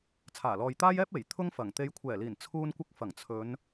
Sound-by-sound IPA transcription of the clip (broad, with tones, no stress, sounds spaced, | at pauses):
t͡sʰ aː˨˩ l ɔː˨ j t̪ aː˥ j ɛː˥ p̚ e˨˩ j t̪ʰ ʊ˥ ŋ f ɐ˨˩ ŋ t̪ e˨˧ j kʷʰ ɛː˨˩ l iː˨˩ n t͡sʰ uː˧ n kʷ ɪ˧ k̚ f ɐ˨˩ ŋ t͡sʰ ɵ˨˧ n